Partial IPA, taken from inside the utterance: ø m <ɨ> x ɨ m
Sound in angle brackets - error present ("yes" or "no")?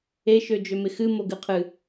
yes